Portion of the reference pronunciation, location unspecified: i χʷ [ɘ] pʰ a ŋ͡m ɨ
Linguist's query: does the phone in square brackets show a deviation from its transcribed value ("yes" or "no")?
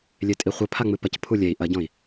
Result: no